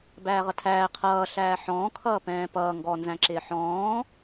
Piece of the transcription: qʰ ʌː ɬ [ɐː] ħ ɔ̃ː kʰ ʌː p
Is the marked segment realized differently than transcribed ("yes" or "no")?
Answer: yes